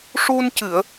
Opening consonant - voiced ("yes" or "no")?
no